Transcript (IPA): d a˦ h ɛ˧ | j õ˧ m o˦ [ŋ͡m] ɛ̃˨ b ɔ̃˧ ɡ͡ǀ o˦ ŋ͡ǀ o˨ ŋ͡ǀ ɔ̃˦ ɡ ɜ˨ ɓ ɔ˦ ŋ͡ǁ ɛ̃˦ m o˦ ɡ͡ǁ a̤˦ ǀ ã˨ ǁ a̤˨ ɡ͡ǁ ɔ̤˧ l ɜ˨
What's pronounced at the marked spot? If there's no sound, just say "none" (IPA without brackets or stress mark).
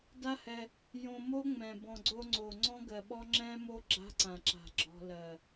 ŋ͡m